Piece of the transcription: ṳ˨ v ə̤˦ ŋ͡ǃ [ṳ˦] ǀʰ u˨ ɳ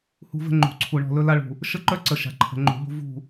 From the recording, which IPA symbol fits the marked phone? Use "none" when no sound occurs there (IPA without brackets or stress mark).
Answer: ṳ˨